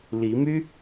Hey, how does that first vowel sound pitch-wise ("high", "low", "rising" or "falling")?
rising